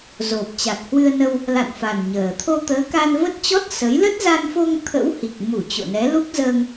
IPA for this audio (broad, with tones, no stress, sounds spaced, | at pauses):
z o˨˩ p̚ t͡ɕ a˨˩ k̚ h w ɨ˧ ə̯ n ə˧ w | l a̰˧˨ n f a˨˩ n ɲ əː˨˩ t̪ʰ o˧ t̪ əː˨˦ k a˧ n v ə˦˥ t̚ t͡ɕ ɔ˦˥ t̚ s ə˨˦ j l ə˦˥ t̚ z a˧ n f o˧ ŋ t̪ʰ ə̰˧˥ w h i˨˩ k̚ m u˧˩ t͡ɕ o̰˧˨ n ɛ˨˦ l u˦˥ k̚ z əː˧ ŋ